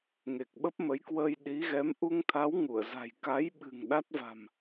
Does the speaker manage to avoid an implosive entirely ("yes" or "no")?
no